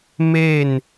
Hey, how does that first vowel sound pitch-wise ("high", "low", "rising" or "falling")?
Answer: falling